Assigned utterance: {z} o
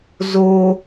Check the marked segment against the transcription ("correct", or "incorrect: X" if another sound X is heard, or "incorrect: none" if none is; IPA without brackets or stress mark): correct